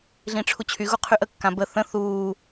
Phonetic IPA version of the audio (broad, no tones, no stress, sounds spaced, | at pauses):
ɮ ĩ ʈ͡ʂʰ u t͡ɕʰ y ɣ u qʰ y ʔ ə kː ã b ə θ ə̃ θ uː